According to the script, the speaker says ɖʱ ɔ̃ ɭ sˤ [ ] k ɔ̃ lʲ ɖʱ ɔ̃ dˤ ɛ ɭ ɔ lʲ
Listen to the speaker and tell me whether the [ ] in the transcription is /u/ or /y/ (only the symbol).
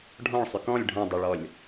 y